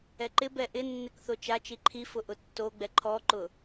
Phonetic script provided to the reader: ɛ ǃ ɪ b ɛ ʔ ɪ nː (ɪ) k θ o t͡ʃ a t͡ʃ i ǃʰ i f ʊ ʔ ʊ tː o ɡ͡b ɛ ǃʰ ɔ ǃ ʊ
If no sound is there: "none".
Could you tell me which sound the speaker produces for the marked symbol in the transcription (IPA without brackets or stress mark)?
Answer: ɪ